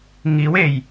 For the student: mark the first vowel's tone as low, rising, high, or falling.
rising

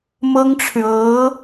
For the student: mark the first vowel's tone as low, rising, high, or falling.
high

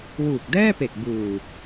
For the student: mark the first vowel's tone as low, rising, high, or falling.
low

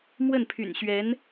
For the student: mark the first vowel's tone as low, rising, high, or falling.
falling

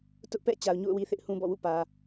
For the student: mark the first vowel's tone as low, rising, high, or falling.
high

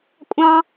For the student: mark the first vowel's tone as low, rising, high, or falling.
high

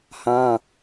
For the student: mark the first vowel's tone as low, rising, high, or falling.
high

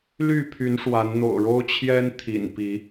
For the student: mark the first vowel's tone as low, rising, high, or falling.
falling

